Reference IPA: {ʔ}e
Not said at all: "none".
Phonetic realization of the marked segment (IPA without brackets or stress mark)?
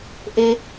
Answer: ʔ